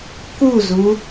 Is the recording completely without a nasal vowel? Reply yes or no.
yes